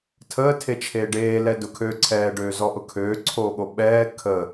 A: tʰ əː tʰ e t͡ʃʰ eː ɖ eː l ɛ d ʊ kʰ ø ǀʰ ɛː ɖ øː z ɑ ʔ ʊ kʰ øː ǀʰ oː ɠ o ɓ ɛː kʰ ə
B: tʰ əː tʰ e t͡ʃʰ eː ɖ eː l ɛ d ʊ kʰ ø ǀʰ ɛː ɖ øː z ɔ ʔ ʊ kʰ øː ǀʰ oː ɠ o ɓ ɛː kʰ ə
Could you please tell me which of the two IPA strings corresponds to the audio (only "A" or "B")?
B